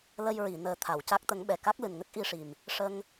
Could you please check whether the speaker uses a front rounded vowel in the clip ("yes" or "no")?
no